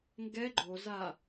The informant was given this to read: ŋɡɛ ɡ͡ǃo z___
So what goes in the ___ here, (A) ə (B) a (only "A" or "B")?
B